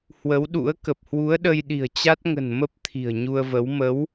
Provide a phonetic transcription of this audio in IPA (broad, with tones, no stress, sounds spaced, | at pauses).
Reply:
h w ə˨˦ w ɗ ṵ˧˥ ə̯ k ə˨˩ p̚ h w u˨˦ ə̯ ɗ ə˧ j ɗ i̤˨˩ ə̯ t͡ɕ a˦˥ t̚ ŋ ə̤˨˩ n m ə˦˥ p̚ t̪ʰ i̤˨˩ ə̯ ɲ u˧ ə̯ v ə˨˦ w m ə˨˦ w